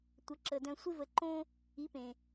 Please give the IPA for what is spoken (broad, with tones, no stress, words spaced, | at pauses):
tʷə˩˥ ǁə˩dœ̃˧ sʷɪ˥və˩˥ ǃõ˥ | i˩˥pẽ˩